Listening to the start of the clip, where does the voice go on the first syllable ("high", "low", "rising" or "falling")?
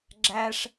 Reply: high